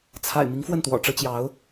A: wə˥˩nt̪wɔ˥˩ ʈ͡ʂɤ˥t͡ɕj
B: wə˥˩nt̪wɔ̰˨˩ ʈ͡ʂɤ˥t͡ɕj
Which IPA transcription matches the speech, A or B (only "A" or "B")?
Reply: B